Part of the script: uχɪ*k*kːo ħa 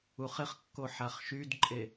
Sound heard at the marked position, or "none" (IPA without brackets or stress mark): χ